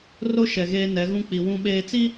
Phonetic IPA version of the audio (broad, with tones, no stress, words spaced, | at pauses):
ro˦ ʃɛ˨ɣeː˦ nɛ˨˦ɣũ˦k͡pi˨ wũ˨ɓeː˨t͡si˦